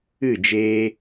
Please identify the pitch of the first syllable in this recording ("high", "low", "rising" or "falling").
falling